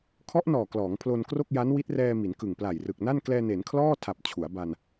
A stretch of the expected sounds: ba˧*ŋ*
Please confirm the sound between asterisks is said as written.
no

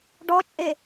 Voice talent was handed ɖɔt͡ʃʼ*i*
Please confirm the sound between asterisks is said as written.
no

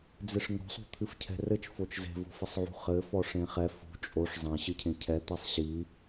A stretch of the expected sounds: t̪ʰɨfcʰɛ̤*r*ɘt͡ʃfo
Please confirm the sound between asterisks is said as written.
yes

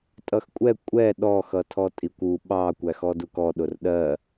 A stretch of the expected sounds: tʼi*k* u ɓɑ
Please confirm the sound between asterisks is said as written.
no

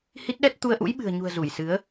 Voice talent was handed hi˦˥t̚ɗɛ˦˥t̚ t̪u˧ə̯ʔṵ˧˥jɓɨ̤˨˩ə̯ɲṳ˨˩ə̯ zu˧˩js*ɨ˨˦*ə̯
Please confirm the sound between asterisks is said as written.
yes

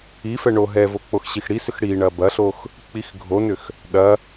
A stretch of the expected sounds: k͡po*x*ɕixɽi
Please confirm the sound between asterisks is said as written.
yes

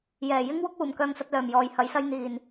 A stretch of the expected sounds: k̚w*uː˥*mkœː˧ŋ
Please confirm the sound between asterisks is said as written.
no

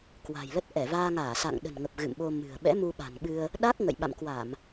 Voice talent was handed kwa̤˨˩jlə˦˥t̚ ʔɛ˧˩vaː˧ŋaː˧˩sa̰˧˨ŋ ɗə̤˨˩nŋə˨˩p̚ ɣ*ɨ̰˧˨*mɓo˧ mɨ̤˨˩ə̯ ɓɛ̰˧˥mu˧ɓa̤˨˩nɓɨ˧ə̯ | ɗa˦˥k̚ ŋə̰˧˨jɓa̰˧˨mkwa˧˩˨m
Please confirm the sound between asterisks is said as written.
yes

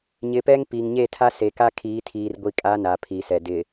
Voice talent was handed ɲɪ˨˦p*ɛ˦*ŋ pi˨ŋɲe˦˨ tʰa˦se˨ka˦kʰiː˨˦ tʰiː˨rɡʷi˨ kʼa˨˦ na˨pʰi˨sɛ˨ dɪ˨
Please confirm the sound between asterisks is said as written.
yes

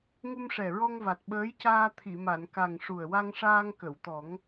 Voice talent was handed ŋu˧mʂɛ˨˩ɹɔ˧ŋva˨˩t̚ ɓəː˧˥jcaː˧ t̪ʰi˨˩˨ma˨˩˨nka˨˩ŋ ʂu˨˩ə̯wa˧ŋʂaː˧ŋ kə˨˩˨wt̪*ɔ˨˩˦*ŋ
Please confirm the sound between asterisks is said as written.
yes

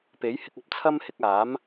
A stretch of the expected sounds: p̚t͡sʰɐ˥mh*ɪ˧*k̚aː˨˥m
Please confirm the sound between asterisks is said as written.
yes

